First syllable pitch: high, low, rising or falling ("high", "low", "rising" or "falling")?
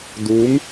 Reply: rising